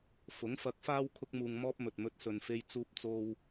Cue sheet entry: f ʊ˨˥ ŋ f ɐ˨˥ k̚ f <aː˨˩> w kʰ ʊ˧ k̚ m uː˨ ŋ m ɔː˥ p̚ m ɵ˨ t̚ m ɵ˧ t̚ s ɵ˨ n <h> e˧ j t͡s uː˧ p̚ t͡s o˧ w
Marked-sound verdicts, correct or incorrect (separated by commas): incorrect, incorrect